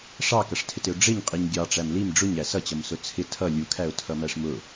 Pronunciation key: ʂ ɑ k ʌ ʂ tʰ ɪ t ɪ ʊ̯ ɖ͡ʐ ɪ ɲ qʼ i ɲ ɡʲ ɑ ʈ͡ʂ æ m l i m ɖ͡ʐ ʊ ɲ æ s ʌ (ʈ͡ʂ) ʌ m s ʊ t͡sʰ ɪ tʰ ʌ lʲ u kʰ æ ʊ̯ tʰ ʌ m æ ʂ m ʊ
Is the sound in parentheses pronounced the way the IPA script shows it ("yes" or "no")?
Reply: no